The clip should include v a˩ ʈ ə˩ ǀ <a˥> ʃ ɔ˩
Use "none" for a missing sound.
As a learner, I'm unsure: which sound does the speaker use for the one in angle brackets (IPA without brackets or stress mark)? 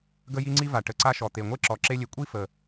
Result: a˥